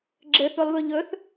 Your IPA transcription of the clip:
ɡ͡ǁɘθulˠβɵ ʎɵθ

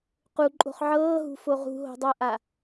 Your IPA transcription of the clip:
quǃʼo̤χ ʕɤːɦṳfo ʁṳɦo̤dˤɤʔa

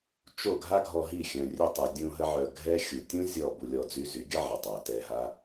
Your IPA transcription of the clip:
t͡ʃo˦˨ ɡʱa˦ɡʱɔ˧ɦi˦˨ xʲœ̃˨rʲœ˧tˤe˨ dʲũ˧ ɦə˦ ʕœ˧ ɡʱɛ˦xʲu˨ tʲũ˦ zʲɔ˦˨ bu˧lʲɔ˧ d͡zy˦ zy˨˦ɡʲə˦ ʕə˨ tˤa˨tɛ˧ɦa˦

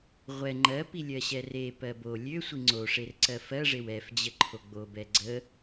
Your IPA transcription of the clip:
ʁʷɛ ŋ͡ǃɜpi lʲɜɕɛrepɜ bo lʲøsʷi ŋ͡ǀoʂer ǀɜfɜʐew ɛfd͡ʑə ǃʰoɡ͡bobɛ ɡ͡ǀə

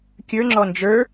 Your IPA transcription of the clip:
kʲə˞ŋ͡ǁɔ nd͡ʒə˞

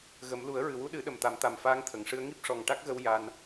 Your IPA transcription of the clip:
ɣə˨˩˦m lu˨˩˦ə̯ɹɨ˨˩wu˧ɗɨ˨˩˦ ɗə˨˩mt̪a˨˩˦m t̪a˨˩mfaː˧˥ŋt̪ʰə˨˩˨ŋʂɨ˧˥ə̯ ŋi˦˥p̚ʂɔ˨˩ŋʈa˦˥k̚ɣə˧w ja˧n

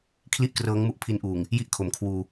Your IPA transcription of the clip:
kʰli˥˩ʔkrɤː˦˥ŋmu˦˥ʔ pʰi˦˥nʔuː˨˩ŋ | ji˥˩ʔkʰo˩˦mkʰwuː˧

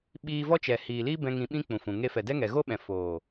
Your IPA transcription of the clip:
ɓiː˧ vɔ˦t͡ʃɛ˨ hiː˨liː˦bɛ̃˧ ŋĩ˧ɓĩ˦k͡pũ˨fũ˨ ŋe˧fɛ˨dɛ˦ŋɛ˨ ɣo˦ɓɛ̃˨ foː˨

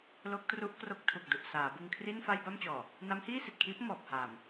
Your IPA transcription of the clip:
lo˦˥k̚tru˦˥ʔkro˦˥k̚tʰu˨˩k̚ du˨˩ʔsaː˩˦ bɯ˧ŋkʰri˥˩n fa˥˩jba˥˩mt͡ɕɔː˨˩ | na˦˥mhiː˥˩si˨˩t̚kʰiː˦˥p̚ mɔː˨˩p̚haː˨˩m

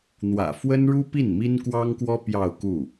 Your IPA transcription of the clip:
n̪wä̰˨˩fwə˥nɻu˥ pi˥˩nmi˥nkwɑ˥ŋkwɔ˥ pjɑ˥˧ʊ̯ku˥˩

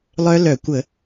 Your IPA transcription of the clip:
lˠœ˦˥ lœ˧˩˧kʷə˧˩˧

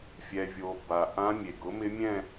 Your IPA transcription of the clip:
fʲɛ˩vʲo˩ ba˩ ʔã˧˥ mʲe˩ɡʊ˩˥mɪ˧˥ mʲɛ̃˥˧

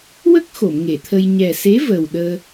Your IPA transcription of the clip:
wə˦˥k̚ xo˨˩˨mŋe˨˩˨t̪ʰə˧j ɲɛ˨˩se˧˥ vəː˨˩wɗəː˧

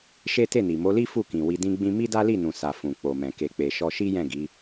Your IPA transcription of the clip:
ʃe˦te˦˨ni˨ mo˨˦li˦ fu˦˨kĩ˨ wi˧dĩ˦ɡ͡bĩ˦ mi˦da˦li˦˨ nũ˨sa˨ fũ˨ k͡po˨mɛ̃˨ ke˨k͡pe˨ʃɔ˧ ʃi˦jɛ̃˦˨ ɡi˨˦

